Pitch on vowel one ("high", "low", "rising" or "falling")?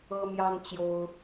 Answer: high